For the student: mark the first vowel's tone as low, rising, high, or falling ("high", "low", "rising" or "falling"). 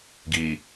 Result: low